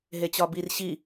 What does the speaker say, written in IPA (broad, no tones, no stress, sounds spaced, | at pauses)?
ɦ e t͡ɕ ɒ b i r ɕ i